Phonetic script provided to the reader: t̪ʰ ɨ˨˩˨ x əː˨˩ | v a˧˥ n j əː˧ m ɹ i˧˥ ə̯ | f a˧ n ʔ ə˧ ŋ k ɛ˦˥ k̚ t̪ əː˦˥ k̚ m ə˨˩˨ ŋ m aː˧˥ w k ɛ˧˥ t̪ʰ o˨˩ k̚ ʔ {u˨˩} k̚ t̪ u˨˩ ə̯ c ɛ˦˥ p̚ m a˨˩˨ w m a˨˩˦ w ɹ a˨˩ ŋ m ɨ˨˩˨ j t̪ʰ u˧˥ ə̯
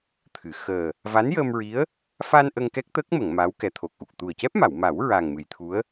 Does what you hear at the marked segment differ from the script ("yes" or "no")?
no